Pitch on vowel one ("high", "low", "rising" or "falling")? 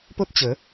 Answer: high